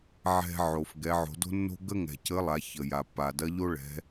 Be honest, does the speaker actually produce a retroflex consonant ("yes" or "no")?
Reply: yes